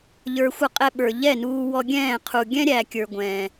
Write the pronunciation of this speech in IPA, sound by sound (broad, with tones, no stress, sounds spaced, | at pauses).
ʎ ə˞˧ xʷ ʌ˦ qʼ ɛ˧ ɓ ə˞˨ ʎ ɛ˦˨ n uː˧ w ɔ˧ ɡʲ ɛ̃ː˦˨ qʰ u˨ ɡʲ ɛ̃˦ ɾʲ æ˨ kʲ ə˞˨ ɡʷ ɛ̃ː˨